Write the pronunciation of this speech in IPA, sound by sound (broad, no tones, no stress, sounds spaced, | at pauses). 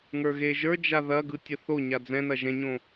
ŋ ə˞ ɣ e ʒ ə˞ d͡ʒ a ð ɐ ɡ ɯ tʲ ɐ θ o ɲ a d͡z ɛ̃ n ɐ ʒ ɛ̃ ɲ õ